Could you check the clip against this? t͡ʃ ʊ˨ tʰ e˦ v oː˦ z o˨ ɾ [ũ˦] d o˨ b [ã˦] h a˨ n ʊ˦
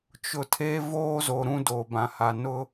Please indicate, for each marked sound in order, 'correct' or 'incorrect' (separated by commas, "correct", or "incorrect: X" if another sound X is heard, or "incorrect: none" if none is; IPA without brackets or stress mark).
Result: correct, incorrect: ã˨